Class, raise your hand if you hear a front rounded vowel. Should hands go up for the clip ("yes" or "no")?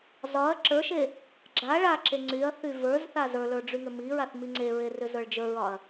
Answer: yes